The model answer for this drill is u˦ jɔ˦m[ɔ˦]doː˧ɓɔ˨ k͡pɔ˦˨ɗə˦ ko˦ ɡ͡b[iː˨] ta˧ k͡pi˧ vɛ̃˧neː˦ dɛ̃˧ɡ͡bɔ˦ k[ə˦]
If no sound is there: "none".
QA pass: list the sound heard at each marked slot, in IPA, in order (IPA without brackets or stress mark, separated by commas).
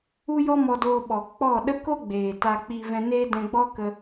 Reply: ɔ˧, eː˨, ə˦